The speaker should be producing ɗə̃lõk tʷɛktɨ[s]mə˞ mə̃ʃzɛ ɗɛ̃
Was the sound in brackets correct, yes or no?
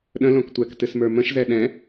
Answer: yes